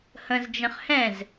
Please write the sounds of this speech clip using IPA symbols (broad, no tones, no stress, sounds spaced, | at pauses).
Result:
h ə̃ z d͡ʒ ə̃ χ h ɛ̃ z